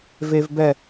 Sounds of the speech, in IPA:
v e˥ v b ɛ˥˧

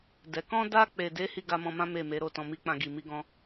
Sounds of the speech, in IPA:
d ɛ˨ k ɔ̃˧ d a˧ k͡p e˨ d e˨˦ h i˦˨ ɡ a˧ m ɔ̃˧ m ã˦ m e˦˨ m e˨˦ ɾ o˦˨ t ɔ̃˨ m i˨˦ k͡p ã˧ ɡ i˨ m i˧ ɡ ɔ̃˧

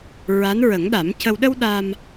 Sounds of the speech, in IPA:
ɹ a˧˥ n ɹ ə˨˩˦ ŋ ɗ a˨˩˦ m c ə˧ w ɗ ə˧ w ɗ a˧ m

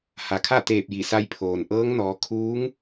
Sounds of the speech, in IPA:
h a˩ kʰ a˥˨ t̪ eː˧˩ p̚ j i˧˩ s a˧ j pʰ oː˩ n ʔ ɤː˧˥ ŋ n ɔː˩˧ kʰ uː˧˥ ŋ

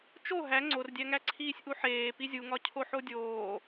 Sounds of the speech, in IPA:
t͡ʃ o ɦ æ ŋ͡ǀ o r dʲ æ ŋ æ ǀʰ iː sʲ ʔ u ħ eː p i zʲ u ŋ ɒ cʰ o ħ o dʲ oː

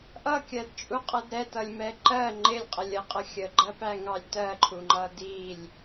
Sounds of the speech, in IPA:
ʔ ʌ kʲ ɜ d t͡ʃʼ u qʼ ʌ d ɾ ɛ t ʌ lʲ m ɛ ǃ ɜ ŋ͡ǃ ɪ lʲ qʼ ə lʲ ə qʼ ə xʲ ə ɡ͡ǃ ɜ p æ ŋ ɑ lʲ t ɜ ǃʰ u ŋ͡ǃ ʌ d i lʲ

